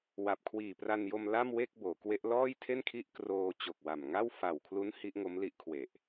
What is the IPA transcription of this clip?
w a˨˩ p̚ kʰ w iː˨˩ p r a˧ n j o˧ m l a˥˩ m w e˥˩ k̚ b oː˩˦ k w e˦˥ ʔ l ɔː˥˩ j tʰ e˥˩ n kʰ i˥˩ ʔ k r oː˧ t͡ɕ o˨˩ k̚ w a˨˩ m ŋ a˥˩ w f a˨˩ w kʰ l u˦˥ n h i˦˥ ʔ ŋ o˦˥ m l i˦˥ ʔ kʰ w e˨˩ ʔ

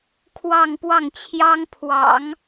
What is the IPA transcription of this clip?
kʰ w ɑ˥˧ ŋ p w ɑ˥˩ ŋ t͡ɕʰ j ɑ˥ ŋ pʰ w ɑ̰˨˩˦ ŋ

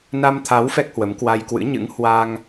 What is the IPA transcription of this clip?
n a˧ m t̪ʰ a˨˦ w f ɛ˦˥ k̚ h w ə˨˦ m k w a˧ j k w ɨ̰˧˥ ɲ ɨ̰˧˥ ŋ h w a˧ ŋ

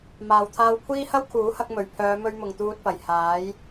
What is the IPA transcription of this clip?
m aː˨ w t̪ʰ aː˧ w kʷʰ iː˥ h ɐ˥ w kʰ uː˨˥ h ɐ˧ k̚ m ɵ˨˩ ɥ pʰ œː˨˧ m ɵ˧ ɥ m ʊ˨ ŋ t̪ uː˧ t̚ p ɐ˨˩ j h aː˨˥ j

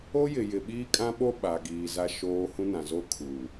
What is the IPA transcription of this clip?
o˦ j ɪ˨ j ɪ˨ ɓ iː˦ kʼ ã˦ ɓ o˦ ɓ a˨ ɡ iː˨ z a˦ ʃ oː˦ h ũ˦ n ã˨ z o˦ kʰ uː˨

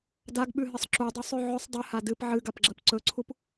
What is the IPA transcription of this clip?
d a ɡ ɓ ʉ ɦ ɨ sˤ ǁ u dˤ u sˤ ʉ ʕ ɵ sˤ dˤ ɨ h a d ɨ p ʕ ɨ ɡ a p ɡ͡ǁ ɐ p ǀ ɵ ǀʰ u p

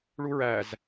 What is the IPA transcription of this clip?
ɭ u ɹ æ z

